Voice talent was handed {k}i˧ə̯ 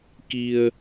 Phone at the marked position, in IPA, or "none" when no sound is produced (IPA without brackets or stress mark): k